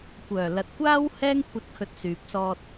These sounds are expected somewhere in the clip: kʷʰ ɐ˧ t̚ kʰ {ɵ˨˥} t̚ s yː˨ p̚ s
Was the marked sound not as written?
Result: yes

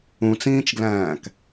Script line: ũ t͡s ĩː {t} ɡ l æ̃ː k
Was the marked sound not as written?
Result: yes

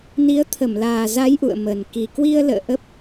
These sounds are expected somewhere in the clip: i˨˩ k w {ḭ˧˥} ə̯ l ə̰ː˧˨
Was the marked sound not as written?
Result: yes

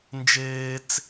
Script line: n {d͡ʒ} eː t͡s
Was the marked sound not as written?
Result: no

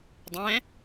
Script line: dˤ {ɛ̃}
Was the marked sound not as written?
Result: no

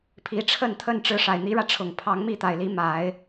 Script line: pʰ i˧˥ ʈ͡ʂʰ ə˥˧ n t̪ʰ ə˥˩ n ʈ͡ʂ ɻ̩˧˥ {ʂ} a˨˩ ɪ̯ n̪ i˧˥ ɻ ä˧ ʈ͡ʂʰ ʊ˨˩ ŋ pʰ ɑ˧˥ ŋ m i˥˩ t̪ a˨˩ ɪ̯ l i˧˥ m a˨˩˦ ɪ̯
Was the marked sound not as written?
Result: no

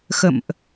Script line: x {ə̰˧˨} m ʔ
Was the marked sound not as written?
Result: no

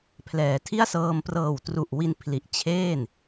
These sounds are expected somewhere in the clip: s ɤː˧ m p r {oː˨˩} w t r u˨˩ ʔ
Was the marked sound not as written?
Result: yes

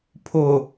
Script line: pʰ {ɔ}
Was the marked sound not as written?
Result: yes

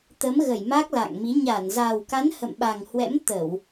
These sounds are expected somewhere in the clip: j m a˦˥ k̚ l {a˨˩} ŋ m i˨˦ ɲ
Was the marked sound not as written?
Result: yes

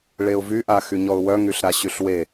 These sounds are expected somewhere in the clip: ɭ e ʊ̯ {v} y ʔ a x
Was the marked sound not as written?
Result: no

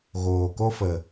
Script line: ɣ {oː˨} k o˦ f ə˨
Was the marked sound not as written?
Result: no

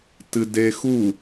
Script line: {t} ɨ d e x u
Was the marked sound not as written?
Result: no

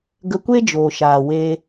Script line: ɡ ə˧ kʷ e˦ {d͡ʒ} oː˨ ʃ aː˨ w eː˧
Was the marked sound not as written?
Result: no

